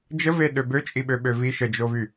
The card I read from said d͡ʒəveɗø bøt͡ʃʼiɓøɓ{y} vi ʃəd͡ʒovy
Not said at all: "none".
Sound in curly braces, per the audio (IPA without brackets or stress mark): ø